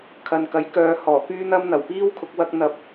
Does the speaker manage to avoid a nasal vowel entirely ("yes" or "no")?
yes